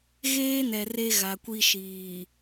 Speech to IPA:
ɣ eː˦ n ɛ˨ r e˦ ɣ a˨ kʷ i˦ ʃ iː˨

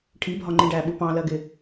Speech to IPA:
ʈʰ i bʱ ɒ ŋ͡ǃ ĩ ɖ æ ɓ u p ɑ̃ l ɜ ɡ ɪ

